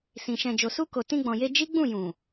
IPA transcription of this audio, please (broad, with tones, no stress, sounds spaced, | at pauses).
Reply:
s ĩ˨ ʃ ɛ̃˨ d͡ʒ o˨ s u˧ k o˨ t ĩ˧ ɡ͡b ɔ̃˨ j e˧ d͡ʒ i˦ ɡ͡b ũ˦˨ j ũ˨